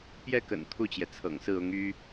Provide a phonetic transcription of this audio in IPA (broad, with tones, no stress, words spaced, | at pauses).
pjɛ˥˩kə̰˨˩n t̪ʰu˥˩t͡ɕjɛ˩t͡sʰɤ̰˨˩ŋsɹ̩˥˩ ʊ˧˥ŋ y˥